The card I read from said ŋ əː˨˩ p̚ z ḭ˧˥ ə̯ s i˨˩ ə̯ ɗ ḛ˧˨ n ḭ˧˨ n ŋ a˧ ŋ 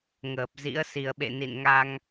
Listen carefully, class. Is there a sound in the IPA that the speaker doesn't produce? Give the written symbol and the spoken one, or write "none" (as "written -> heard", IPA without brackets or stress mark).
ɗ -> ɓ